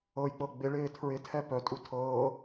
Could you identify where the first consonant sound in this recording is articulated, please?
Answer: palatal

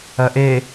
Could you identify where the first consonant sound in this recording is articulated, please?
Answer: glottal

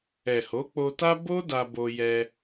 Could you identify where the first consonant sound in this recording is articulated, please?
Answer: glottal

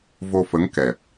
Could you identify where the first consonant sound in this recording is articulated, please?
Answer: labial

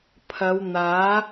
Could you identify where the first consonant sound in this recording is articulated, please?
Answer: labial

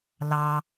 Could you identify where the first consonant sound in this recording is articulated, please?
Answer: alveolar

